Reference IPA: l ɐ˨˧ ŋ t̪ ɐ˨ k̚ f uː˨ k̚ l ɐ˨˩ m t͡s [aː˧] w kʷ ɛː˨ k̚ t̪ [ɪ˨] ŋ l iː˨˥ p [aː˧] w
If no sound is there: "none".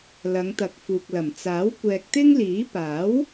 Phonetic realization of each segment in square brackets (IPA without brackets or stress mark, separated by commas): aː˨˥, ɪ˥, aː˨˥